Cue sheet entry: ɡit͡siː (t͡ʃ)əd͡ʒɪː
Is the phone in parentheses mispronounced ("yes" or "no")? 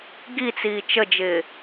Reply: no